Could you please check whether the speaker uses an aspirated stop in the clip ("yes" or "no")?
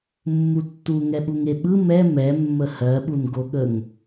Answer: no